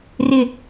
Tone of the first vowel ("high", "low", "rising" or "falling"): low